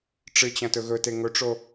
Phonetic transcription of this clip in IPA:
ʈ͡ʂ ɨ t͡ɕ ɐ̃ t ɵ ɣ ɵ t e ŋ ɵ ʈ͡ʂ o

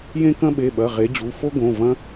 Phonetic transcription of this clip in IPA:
j ẽ˦ k ɐ̃˦ ɓ e˩˧˩ ɓ ɐ˩˧˩ ʁ e˨˦ d͡ʑ u˩˧˩ f o˦ ɡ õ˩˧˩ v ɐ̃˦

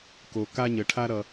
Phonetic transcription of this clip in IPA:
k o˩ k a˧ ɲ ə˩ ʈʰ a˧ ɾ ʌ˩

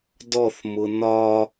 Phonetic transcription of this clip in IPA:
d ɔ θ m ʊ n ɒ

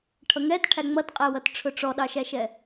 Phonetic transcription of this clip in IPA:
ʈʰ ʌ ŋ ɛ t ʈʰ æ ŋ͡m ʌ t qʼ ɛ w ʌ t ʈ͡ʂʰ ʊ ʈ͡ʂ ɔ ɗ ɑ ʃ æ ʃ ɛ

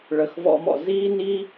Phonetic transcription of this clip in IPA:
ɭ ə˨ x v ɔ̰˦ m ɔ̰˨ z iː˥ n iː˥

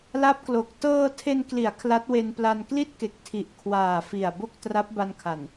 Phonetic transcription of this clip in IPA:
l a˦˥ p̚ k l o˨˩ k̚ t ɤː˧ tʰ e˧ n k l i˩˦ a̯ kʰ l a˦˥ t̚ w e˧ n p l a˧ n k l i˥˩ t̚ k e˨˩ k̚ tʰ i˨˩ ʔ kʰ w aː˨˩ f i˨˩ a̯ b o˥˩ k̚ t r a˦˥ p̚ b a˧ n kʰ a˨˩ n

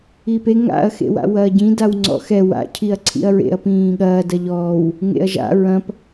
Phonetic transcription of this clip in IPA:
i p e ŋ a̰ ɐ̯ x ḛ w a̰ w ɐː ɟ ĩ d a w ŋ͡ǀ ɔ̰ x ɛ w a̰ cʰ i ɐ̯ ǀʰ ḭ ɐ̯ ɹ ḛ ɐ̯ p ĩː ɠ ɐː d ɐ ʎ ɔː w | ŋ ḛ ɐ̯ ʒ a̰ ɹ ɐ̃ p

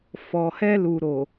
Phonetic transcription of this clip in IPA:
f ɔ˨ h ɛ˧ l u˨ ɾ o˨

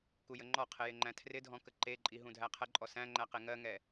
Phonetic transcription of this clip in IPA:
k u j ə ŋ͡ǃ ɔ qʰ ɪ j ɪ ŋ͡ǃ æ̃ tʰ r ɪ dʱ ɔ̃ k ə ǃ e ǃʼ i ɦ ũ dʱ æ qʰ ə ǃʼ ɔ s æ̃ ŋ͡ǃ æ q e ŋ ɜ ŋ ɛ

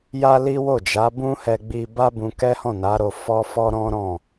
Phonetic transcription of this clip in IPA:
j a˦ l i˦ w o˦˨ d͡ʒ a˨˦ b ũ˦ h ɛ˧ ɡ͡b i˧ b a˦ b ũ˧ k ɛ˦ h ɔ̃˦˨ n a˨˦ ɾ o˧ f ɔ˦ f ɔ˦ ɾ ɔ̃˦ ɾ ɔ̃˦˨

